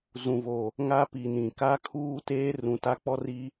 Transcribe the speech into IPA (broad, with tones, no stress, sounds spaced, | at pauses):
z ũ˨ v o˨ | ŋ a˦ p i˨ n ĩ˨ k a˦ kʰ uː˦ t eː˦ r ũ˨ t a˦ k͡p ɔ˦ r i˦